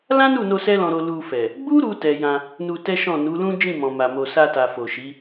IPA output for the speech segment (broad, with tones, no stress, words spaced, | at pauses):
lã˦nu˦˨no˧ sɛ˦lɔ̃˧ ɾo˧ lu˧fɛ˨ | ɡ͡bu˦ɾu˧ tɛ˧jã˧ | nu˧tɛ˦ʃɔ̃˦˨ nu˨˦lũ˦d͡ʒĩ˦˨ mɔ̃˨ma˨mo˨ sa˧ta˨ fo˨ʃi˨˦